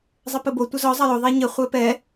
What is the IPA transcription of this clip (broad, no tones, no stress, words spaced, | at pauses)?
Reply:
zˤɘpɘbo tʷɘzɔ zˤɐjo ðˤɛɲɘ χʷɛpɛ